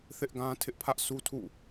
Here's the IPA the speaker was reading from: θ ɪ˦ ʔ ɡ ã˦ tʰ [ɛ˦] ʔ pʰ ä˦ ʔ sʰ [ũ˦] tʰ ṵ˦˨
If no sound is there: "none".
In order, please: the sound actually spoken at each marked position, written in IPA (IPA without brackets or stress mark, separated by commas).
ɪ˦, u˦